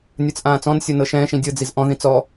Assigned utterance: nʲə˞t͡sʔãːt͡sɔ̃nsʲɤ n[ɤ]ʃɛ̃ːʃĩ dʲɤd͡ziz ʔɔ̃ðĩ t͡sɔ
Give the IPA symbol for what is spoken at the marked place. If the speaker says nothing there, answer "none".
ɤ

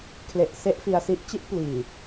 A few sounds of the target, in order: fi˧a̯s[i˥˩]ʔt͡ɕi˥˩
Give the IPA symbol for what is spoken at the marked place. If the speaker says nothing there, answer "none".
i˦˥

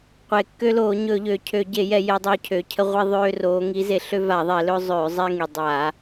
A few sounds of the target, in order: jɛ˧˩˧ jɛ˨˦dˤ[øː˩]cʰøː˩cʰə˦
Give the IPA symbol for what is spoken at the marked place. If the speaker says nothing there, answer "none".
øː˨˦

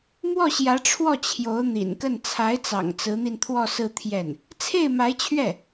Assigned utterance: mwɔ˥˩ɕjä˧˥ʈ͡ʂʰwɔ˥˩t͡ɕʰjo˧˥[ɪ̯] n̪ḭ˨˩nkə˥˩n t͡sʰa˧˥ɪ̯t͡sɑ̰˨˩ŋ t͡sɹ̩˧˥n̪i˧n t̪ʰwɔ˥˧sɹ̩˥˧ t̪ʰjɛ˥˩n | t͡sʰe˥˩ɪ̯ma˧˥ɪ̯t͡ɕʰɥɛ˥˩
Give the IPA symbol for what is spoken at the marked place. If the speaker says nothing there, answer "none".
ʊ̯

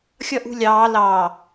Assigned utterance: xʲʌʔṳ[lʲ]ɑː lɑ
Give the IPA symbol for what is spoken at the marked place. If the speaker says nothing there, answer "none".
lʲ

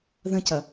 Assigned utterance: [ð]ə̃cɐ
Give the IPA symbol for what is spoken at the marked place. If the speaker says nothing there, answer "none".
ð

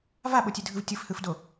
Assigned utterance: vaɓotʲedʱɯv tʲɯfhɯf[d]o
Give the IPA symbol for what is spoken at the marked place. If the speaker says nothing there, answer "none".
d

